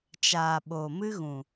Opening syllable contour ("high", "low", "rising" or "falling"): low